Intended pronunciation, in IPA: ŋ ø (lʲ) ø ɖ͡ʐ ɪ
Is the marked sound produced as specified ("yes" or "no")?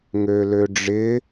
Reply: no